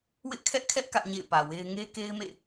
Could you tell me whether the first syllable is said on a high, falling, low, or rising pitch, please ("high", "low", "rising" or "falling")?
high